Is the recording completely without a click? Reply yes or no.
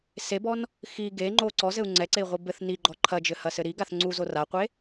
no